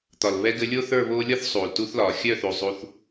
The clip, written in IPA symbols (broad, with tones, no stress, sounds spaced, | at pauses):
t̪ ɒ˨ l β ɛ˧ ɡ ɘ˧ lʲ o˦ θ ə˞˦˨ β oː˧ lʲ ɒ˦ θ sˤ uː˨ l t u˦ θ l ɒː˨ xʲ œ˦˨ θ u˨ zˤ u˧ θ